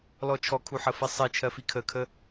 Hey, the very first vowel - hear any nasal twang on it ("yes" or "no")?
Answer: no